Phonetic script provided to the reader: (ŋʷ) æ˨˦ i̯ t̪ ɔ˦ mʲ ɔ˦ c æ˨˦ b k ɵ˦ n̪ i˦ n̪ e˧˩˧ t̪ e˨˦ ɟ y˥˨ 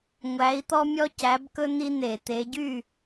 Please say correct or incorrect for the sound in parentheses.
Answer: correct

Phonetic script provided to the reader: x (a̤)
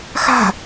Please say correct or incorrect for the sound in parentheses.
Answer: correct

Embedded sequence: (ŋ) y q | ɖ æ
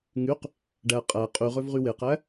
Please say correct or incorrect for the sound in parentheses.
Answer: correct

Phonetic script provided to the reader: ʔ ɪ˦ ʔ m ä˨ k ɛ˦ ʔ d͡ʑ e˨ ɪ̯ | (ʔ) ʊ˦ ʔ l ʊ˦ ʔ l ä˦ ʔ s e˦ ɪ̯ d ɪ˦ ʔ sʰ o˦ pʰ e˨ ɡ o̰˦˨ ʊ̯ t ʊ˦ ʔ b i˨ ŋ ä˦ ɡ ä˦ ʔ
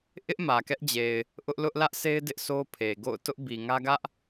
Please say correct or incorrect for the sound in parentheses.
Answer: correct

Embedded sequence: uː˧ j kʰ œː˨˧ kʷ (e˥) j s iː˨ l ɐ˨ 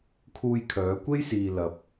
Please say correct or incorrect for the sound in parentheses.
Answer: correct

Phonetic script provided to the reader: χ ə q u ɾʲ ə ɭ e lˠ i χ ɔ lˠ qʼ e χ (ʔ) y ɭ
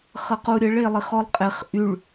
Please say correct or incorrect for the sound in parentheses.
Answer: correct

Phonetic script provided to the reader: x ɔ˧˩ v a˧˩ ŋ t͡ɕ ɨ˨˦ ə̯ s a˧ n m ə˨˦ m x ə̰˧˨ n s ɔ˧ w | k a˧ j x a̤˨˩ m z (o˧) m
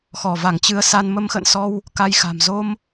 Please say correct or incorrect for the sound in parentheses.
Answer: correct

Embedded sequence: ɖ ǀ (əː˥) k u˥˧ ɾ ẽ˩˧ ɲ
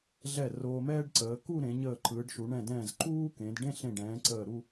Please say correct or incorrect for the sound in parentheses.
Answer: incorrect: əː˩˧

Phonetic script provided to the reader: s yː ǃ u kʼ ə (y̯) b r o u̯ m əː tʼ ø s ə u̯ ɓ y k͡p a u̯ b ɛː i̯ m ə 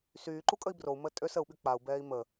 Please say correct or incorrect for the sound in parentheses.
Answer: incorrect: i̯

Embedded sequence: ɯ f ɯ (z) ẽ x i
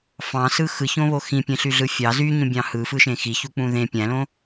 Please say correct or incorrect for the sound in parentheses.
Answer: incorrect: ʃ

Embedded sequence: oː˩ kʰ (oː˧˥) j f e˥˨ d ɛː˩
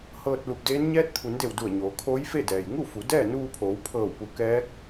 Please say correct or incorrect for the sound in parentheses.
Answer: correct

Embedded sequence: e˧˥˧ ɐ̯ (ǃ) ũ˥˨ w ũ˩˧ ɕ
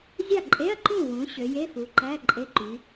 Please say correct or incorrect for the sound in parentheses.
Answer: correct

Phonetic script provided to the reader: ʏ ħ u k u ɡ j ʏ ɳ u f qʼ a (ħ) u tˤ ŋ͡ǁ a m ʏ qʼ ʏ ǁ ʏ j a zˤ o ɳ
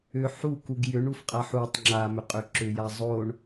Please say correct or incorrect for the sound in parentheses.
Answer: correct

